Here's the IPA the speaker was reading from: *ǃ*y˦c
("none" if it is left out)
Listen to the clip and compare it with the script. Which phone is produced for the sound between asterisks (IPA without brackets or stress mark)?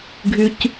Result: ɡʱ